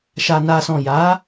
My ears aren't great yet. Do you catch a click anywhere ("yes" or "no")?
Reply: no